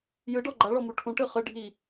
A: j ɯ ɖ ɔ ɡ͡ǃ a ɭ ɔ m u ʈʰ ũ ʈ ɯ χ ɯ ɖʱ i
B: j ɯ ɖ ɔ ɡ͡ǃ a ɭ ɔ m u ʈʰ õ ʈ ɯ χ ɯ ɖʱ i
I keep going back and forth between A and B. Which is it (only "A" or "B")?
A